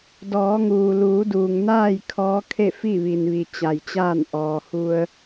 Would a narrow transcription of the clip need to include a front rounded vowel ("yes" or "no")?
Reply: no